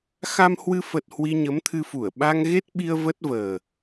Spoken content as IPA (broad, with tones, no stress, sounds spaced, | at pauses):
x a˧ m h w ɨ˧ f ə˨˩ t̚ h w i˧ ɲ ə˨˦ m t̪ʰ ɨ˧ f u˧˩ ə̯ ɓ a˧ ŋ ɣ e˦˥ t̚ ɓ i˧ ə̯ v ə˦˥ t̚ v əː˨˩